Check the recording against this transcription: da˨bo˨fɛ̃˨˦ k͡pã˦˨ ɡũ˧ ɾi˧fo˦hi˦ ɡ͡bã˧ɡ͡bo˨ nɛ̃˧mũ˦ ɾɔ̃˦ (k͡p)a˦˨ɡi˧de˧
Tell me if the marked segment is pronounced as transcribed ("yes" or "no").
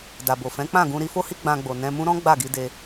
no